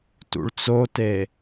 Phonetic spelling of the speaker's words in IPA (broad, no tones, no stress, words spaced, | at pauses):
tṵɭt͡sote